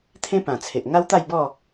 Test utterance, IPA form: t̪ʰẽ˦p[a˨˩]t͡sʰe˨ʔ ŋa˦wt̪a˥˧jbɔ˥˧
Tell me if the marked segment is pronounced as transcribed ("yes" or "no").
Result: no